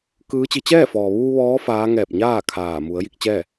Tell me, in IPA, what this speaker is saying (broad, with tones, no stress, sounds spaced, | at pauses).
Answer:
k ɯː˧˥ t͡ɕ i˧ t͡ɕ ɛː˥˨ f ɔː˩ ʋ uː˧ ʋ ɔː˧˥ f aː˧˥ ŋ ɛː˧˩ p̚ ɲ aː˥˨ kʰ aː˧˩ m u˩˧ ə̯ j i˧ k̚ t͡ɕ ɛː˥˨